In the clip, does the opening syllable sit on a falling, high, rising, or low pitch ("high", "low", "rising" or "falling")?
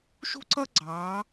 high